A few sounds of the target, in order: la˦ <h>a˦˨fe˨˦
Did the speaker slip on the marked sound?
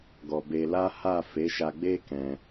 no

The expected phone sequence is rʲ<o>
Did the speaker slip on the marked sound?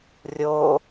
no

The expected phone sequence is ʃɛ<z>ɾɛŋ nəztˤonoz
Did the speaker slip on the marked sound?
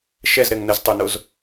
no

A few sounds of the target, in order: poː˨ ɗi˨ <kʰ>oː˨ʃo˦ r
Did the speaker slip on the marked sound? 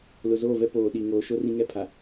yes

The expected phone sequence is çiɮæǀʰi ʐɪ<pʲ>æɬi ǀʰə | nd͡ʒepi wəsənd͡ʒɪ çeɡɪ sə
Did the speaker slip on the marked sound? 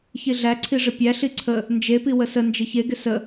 no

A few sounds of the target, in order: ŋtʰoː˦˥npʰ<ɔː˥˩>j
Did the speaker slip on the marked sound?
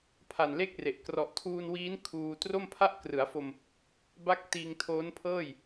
yes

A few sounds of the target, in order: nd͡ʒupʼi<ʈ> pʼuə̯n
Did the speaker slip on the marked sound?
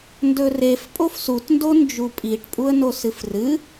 no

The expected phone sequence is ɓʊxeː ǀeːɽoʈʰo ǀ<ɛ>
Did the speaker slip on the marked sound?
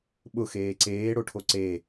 yes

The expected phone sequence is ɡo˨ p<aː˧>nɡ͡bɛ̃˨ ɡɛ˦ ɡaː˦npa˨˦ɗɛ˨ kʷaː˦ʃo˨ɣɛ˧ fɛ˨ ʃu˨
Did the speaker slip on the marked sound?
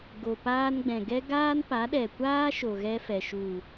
no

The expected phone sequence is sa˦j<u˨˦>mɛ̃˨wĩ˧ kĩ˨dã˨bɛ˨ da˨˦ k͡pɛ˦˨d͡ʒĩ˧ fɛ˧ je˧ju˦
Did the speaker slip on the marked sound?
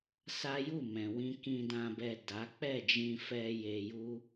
yes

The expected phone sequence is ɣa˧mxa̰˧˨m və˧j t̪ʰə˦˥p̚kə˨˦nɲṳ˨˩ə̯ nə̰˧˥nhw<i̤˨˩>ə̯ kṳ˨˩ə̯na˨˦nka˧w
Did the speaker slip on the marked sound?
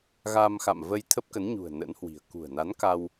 no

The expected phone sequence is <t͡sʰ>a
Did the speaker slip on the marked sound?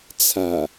no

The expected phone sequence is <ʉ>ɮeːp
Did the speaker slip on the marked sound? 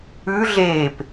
no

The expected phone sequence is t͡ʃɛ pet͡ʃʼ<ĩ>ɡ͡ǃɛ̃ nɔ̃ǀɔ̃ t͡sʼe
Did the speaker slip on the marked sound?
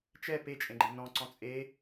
yes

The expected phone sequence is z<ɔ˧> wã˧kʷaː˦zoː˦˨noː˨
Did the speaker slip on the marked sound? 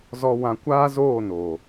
no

